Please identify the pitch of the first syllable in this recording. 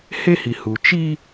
high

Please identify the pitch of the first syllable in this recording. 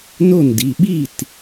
falling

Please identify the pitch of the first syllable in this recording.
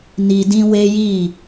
low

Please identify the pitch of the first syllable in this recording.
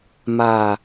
low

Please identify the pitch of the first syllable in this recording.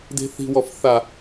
high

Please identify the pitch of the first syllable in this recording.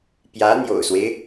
rising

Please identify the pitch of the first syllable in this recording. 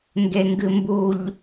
low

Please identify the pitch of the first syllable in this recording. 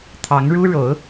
rising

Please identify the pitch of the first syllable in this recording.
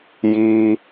high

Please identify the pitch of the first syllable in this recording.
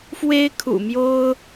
high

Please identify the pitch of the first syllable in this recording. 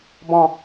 falling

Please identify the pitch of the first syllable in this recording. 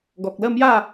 low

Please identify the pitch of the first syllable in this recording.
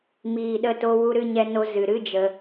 low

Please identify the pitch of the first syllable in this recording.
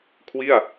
falling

